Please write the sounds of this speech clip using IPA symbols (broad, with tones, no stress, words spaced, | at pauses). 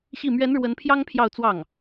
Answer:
ɕi˥˩ mɥɛ˧˥n ɻwə˧˥npʰjɑ˥ŋ pʰjɑ˥˧ʊ̯t͡swɑ˥˩ŋ